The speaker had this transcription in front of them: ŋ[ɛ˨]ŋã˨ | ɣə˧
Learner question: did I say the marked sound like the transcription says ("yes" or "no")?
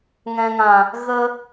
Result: no